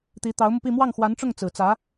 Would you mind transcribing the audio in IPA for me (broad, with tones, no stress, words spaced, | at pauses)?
t̪i˧˥ t̪ɑ˧˥ʊ̯mu˧pi˥˧ mwɑ˥˩ŋxwa˧˥nʈ͡ʂʊ˥˩ŋ t͡sɹ̩˨˩t͡sä˧˥